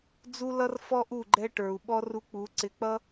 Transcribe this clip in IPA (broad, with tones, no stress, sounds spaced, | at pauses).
d͡z u˦ l ʌ˦ r f ɔ˦ ʔ u˦˨ ɡ͡ǃ ɛ˧ ʈ ə˞˨ u̯ ɓ ɔ˧ r u˧ k͡p u˨˦ ǀ ɪ˧ k͡p ʌ˦